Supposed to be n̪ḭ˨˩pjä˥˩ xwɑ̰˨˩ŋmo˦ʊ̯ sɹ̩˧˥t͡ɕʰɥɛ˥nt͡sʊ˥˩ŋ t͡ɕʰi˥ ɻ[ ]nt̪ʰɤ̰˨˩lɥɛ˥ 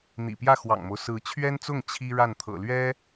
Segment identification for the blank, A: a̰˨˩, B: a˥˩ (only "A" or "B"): B